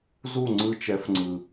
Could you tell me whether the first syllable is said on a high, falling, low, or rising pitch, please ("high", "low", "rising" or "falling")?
falling